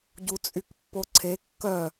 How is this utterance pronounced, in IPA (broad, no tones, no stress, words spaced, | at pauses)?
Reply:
ɟut͡sʼykpːoǀʰe kːœ